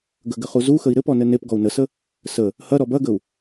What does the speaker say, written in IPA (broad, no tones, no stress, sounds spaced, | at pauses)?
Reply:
ɡ ə ɡ ɘ χ u z u x ə i̯ ɾ ɘ p ɔ n ɘ n e p ɡ ɔ u̯ n ə s ə | s ə | h ɐ ɾ ɔ b ɐ ɡ ə u̯